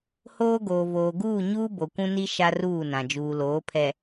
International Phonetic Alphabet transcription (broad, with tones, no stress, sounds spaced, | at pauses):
h oː˦ ɡ oː˨ v oː˨ ɡ uː˦˨ ɲ uː˦ b o˨ kʷ ũ˦ n i˦ ʃ a˦ r uː˦˨ n ã˨ d͡ʒ uː˨ l oː˨˦ pʰ ɛ˨